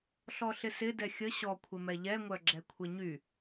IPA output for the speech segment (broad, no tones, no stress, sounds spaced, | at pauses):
ɬ ɔ ɬ ɪ s ɪ d ɛ xʲ ə ɕ ɔ kʷʰ ɪ m ɛ ʎ ɛ ŋʷ œ ɡ͡ǁ ɛ kʷʰ ɪ ɲ y